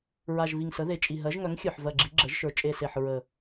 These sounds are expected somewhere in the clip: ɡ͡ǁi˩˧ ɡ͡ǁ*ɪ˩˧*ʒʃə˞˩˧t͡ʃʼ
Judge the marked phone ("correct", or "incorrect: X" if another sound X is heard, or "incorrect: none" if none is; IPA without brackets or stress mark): incorrect: ə˩˧